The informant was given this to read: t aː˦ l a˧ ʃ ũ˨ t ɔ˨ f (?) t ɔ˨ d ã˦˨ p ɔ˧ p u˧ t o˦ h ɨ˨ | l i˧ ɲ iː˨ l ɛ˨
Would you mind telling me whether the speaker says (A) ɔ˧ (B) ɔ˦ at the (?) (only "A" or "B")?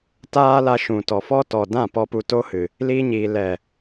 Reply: B